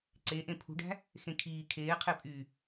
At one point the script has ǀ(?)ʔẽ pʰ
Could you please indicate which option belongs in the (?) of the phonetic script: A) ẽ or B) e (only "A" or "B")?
B